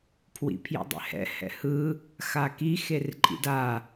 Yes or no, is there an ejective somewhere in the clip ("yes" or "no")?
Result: yes